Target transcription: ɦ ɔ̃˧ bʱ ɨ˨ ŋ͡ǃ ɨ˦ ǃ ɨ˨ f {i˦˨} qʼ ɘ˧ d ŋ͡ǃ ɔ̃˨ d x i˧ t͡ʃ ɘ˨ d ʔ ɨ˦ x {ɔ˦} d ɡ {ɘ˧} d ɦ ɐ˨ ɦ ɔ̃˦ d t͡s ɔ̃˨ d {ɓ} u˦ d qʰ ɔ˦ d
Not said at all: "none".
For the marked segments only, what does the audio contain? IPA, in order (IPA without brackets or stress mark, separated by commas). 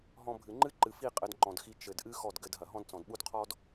i˦˨, ɔ˦˨, ɘ˧, ɓ